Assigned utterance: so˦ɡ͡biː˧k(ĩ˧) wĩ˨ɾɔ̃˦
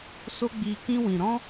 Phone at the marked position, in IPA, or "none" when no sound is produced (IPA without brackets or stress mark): ĩ˦